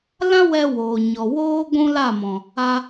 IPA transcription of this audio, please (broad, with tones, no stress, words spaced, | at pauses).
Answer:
lã˦wɛ˧ woː˨ɲɔ˨ woː˦ ɡʷũ˦la˦˨ mɔ̃˨ | a˧